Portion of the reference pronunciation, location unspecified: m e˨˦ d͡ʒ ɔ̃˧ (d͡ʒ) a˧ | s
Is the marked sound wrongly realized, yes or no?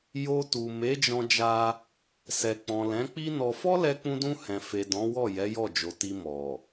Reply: no